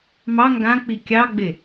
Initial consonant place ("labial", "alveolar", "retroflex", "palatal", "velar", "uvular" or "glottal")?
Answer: labial